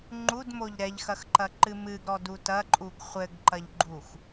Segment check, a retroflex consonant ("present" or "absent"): absent